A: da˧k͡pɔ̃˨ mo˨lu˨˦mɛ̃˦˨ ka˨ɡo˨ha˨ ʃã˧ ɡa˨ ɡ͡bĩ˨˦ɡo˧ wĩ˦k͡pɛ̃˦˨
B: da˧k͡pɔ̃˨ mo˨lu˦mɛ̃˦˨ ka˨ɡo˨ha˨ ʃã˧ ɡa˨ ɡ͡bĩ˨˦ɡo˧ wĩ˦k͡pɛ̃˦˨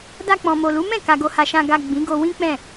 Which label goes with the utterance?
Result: A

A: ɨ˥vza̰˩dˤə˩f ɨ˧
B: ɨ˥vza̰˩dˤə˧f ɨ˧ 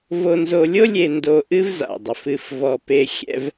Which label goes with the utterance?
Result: A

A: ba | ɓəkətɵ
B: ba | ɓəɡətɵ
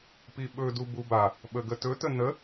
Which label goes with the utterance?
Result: B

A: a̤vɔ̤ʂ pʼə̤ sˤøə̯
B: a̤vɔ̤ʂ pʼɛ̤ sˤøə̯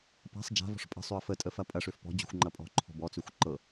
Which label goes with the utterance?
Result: A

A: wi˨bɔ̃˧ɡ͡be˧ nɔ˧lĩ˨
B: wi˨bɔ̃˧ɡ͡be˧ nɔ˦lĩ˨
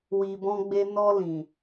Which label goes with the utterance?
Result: A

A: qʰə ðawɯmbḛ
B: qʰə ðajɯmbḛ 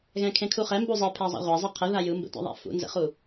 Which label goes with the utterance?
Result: B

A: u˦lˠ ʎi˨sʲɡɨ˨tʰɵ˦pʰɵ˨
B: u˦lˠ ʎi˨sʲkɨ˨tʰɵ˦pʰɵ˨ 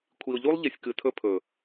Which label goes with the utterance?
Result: B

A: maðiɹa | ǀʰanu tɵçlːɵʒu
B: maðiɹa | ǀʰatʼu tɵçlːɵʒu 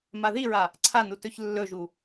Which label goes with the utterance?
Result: A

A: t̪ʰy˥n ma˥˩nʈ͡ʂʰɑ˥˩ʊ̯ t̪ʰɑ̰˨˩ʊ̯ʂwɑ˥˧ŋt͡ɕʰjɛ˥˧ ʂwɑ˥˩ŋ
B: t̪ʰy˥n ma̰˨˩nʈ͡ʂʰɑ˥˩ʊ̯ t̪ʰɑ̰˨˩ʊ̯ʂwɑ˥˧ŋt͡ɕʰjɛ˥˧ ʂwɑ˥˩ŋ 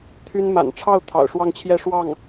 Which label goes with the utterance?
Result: B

